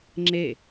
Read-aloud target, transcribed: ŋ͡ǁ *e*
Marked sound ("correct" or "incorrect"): correct